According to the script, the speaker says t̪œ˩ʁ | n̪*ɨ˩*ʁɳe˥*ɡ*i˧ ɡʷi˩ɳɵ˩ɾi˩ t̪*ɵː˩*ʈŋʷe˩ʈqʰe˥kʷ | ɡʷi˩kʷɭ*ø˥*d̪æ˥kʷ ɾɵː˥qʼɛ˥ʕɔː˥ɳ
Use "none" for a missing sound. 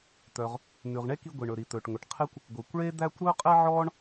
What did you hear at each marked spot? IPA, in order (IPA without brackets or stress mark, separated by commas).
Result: ʉ˩, k, ɵː˩, e˥